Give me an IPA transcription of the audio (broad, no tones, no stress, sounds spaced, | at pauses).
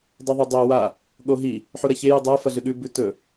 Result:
dˤ o ðˤ o dˤ o w a | ɠ o ɦ i | ħ u ɾ ɐ ç e j u dˤ a f ɐ ɮ ɨ ɠ ʉ b ʉ t ɵ